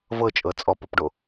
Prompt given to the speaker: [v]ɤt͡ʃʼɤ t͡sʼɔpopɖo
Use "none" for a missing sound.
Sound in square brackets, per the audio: v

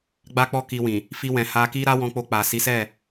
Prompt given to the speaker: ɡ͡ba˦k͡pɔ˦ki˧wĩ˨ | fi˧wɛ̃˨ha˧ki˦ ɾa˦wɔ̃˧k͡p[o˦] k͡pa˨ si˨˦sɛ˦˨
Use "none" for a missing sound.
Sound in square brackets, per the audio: o˧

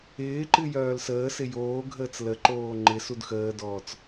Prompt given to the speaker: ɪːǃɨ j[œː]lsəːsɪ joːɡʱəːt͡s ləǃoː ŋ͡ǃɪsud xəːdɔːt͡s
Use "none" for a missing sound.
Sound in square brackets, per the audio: œː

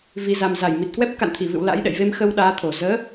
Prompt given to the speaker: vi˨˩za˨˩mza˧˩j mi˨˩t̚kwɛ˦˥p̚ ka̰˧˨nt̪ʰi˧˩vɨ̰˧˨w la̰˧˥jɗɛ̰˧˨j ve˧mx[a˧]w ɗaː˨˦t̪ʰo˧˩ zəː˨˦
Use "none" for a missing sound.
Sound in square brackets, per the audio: ə˧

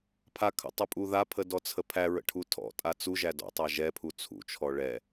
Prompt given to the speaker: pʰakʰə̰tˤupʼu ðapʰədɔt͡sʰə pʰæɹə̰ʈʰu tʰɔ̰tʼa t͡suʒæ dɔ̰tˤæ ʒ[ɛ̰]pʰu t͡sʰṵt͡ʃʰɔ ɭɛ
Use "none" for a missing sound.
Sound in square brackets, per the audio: ɛ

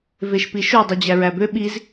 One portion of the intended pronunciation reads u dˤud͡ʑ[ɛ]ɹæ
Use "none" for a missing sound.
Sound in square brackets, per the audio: æ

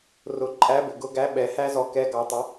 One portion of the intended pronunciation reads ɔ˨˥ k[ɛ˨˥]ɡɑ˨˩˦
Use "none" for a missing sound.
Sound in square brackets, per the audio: ɛ˨˥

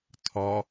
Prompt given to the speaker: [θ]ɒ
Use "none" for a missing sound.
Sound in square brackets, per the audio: tʰ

